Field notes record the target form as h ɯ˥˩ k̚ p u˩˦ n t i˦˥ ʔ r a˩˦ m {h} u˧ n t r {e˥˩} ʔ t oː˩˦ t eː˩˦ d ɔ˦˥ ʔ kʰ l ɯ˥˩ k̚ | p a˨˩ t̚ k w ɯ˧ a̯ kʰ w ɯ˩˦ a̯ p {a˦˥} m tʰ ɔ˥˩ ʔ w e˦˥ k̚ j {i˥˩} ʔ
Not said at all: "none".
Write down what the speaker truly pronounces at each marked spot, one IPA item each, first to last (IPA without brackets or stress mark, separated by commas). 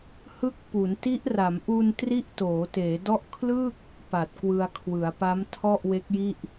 ʔ, i˥˩, a˦˥, i˥˩